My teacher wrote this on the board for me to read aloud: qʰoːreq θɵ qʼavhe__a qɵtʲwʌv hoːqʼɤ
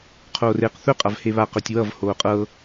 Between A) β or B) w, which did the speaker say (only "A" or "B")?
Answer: A